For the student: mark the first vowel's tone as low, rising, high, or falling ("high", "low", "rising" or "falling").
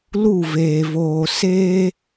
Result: falling